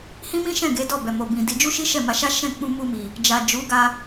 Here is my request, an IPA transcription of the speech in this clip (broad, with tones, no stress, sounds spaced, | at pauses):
h ĩ˦ m ĩ˦ ʃ ɛ̃˦˨ ɡ e˨˦ d ɔ˦˨ b ɛ˨ m o˨ b ĩ˨ d i˨˦ d͡ʒ u˦ ʃ i˦ ʃ ɛ˦˨ m a˧ ʃ a˦ ʃ ɛ̃˦˨ k͡p ũ˧ m u˧ m i˨ | d͡ʒ a˨ d͡ʒ u˨˦ ɡ a˧